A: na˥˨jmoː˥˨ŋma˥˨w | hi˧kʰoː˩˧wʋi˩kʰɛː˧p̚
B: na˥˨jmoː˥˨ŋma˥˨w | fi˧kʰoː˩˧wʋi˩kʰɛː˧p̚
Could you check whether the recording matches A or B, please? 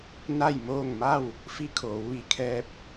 B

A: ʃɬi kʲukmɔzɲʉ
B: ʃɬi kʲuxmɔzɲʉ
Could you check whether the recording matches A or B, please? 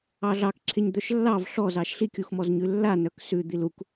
B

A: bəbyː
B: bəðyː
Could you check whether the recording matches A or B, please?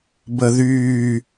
B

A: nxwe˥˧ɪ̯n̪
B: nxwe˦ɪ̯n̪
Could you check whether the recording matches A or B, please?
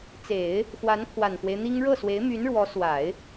B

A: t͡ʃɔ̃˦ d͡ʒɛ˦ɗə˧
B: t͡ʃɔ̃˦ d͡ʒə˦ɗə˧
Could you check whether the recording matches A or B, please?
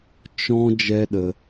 A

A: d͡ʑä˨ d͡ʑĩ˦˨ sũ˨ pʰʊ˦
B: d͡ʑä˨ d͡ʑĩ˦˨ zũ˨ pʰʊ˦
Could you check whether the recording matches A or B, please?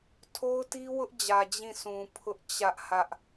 A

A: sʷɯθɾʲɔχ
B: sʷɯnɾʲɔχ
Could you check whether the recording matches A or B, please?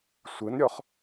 B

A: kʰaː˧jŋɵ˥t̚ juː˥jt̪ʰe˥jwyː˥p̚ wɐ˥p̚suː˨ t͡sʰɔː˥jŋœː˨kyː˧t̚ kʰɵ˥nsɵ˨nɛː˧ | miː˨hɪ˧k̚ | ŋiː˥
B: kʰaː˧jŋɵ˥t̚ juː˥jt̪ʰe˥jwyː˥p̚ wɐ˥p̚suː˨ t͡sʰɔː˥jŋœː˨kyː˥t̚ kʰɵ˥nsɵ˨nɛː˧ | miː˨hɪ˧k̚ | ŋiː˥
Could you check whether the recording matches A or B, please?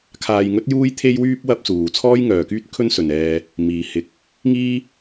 B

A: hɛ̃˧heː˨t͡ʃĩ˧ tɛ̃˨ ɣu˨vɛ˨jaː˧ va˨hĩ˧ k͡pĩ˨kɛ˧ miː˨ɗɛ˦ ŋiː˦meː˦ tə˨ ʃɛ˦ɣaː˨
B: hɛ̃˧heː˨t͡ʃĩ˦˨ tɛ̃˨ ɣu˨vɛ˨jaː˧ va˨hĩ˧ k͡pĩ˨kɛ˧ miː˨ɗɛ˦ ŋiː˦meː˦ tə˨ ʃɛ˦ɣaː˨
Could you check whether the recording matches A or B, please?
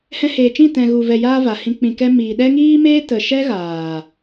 B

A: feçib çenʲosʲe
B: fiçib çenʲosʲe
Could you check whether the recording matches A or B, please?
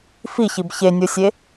B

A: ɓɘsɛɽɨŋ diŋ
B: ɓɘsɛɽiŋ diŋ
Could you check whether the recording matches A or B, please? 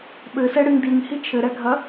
A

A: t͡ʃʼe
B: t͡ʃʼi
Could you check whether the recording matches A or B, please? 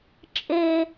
A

